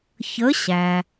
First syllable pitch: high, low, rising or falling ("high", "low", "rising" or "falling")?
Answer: rising